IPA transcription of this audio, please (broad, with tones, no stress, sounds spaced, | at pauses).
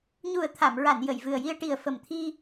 ɲ u˨˩ ə̯ t̪ʰ a˨˩˨ m ɹ a˨˩˨ n j ə˨˩˨ j v ɨ˨˩ ə̯ j i˧ ə̯ ʈ i˨˩ ə̯ f ə˨˩ m t̪ʰ i˧